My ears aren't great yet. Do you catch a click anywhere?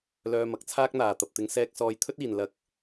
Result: no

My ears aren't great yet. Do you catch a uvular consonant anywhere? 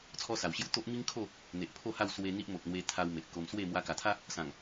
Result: no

